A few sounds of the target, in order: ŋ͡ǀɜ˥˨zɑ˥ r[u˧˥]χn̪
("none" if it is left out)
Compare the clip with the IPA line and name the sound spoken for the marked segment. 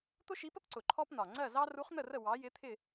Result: u˧˥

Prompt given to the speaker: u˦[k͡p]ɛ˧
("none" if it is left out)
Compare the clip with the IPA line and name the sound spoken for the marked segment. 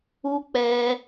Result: k͡p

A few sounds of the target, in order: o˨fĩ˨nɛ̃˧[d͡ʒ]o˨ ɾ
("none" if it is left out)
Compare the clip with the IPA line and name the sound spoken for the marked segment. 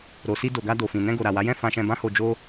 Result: ɡ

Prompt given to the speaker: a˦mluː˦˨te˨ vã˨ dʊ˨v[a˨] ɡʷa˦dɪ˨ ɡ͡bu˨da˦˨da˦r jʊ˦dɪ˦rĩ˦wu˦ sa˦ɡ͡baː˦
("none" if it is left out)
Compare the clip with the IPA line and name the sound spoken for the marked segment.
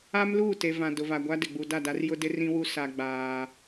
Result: a˨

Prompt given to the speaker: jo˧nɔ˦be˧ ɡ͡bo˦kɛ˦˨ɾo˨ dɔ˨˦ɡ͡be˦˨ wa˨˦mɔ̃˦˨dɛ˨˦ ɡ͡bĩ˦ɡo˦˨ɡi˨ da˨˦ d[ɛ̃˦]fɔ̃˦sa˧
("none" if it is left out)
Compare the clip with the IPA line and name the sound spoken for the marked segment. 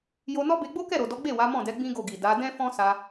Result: ɛ̃˦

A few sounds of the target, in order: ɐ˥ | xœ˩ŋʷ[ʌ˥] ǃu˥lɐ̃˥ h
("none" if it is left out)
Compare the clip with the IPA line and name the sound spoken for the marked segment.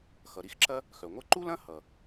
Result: ʌ˥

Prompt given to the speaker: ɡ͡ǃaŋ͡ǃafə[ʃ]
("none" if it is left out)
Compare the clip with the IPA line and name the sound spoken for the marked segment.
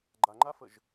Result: ʒ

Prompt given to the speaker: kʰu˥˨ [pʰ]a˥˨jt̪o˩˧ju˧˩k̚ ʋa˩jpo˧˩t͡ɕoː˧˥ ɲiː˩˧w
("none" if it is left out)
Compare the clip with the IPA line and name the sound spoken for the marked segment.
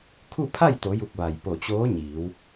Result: pʰ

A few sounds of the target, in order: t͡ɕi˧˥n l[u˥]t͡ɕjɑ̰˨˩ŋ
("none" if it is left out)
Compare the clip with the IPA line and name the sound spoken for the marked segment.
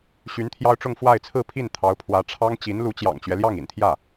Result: u˧˥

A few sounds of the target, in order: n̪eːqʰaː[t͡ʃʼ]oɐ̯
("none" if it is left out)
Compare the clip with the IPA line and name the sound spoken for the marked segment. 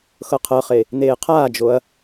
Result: d͡ʒ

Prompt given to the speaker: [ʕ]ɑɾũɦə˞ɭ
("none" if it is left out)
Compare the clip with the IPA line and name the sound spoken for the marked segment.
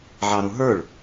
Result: ʕ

